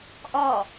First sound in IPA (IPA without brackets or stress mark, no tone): ʔ